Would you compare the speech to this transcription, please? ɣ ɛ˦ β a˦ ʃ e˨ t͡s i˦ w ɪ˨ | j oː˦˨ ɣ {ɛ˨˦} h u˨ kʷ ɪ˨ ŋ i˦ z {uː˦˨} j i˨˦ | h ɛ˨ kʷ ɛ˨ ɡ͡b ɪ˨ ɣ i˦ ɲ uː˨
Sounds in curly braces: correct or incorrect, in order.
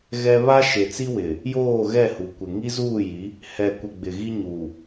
incorrect, correct

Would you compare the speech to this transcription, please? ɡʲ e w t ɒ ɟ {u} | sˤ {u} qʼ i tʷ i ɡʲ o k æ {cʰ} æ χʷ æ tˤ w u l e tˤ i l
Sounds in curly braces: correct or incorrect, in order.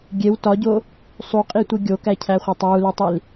incorrect, correct, correct

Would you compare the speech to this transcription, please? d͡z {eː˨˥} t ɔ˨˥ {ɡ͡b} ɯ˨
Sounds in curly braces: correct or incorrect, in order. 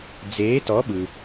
correct, incorrect

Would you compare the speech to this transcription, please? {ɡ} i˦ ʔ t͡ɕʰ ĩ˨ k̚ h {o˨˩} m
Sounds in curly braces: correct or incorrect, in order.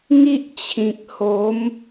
incorrect, incorrect

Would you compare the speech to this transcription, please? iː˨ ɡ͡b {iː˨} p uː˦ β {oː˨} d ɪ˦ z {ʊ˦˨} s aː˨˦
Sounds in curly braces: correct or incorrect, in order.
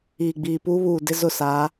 correct, incorrect, correct

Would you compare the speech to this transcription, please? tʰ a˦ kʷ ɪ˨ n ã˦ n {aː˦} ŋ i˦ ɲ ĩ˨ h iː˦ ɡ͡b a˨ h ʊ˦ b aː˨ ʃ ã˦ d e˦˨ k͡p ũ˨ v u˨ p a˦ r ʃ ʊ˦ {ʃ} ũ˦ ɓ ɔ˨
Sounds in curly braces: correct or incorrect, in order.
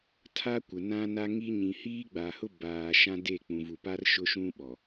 incorrect, correct

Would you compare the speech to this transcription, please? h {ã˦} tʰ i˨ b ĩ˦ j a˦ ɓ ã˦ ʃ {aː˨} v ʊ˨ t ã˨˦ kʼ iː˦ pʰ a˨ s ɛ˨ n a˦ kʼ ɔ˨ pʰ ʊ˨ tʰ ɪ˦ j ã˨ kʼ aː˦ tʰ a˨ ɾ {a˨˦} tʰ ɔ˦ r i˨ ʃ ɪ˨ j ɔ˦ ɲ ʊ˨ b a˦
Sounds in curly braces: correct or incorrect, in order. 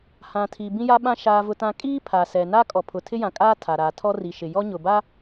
incorrect, correct, correct

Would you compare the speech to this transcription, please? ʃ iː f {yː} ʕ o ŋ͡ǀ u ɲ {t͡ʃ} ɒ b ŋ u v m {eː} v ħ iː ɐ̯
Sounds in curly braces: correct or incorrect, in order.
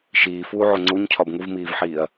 incorrect, incorrect, incorrect

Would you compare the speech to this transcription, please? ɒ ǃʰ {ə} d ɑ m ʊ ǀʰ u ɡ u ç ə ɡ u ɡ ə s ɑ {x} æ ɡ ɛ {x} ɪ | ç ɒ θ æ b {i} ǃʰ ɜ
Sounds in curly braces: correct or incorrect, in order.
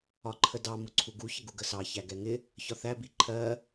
correct, incorrect, incorrect, correct

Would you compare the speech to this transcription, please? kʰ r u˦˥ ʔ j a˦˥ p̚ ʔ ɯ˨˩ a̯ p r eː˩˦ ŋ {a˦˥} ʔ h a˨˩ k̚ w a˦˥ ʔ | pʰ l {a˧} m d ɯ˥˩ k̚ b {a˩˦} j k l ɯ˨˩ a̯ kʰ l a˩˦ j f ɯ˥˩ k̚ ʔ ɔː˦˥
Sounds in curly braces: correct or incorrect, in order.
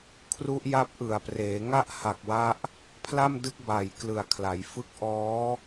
incorrect, incorrect, incorrect

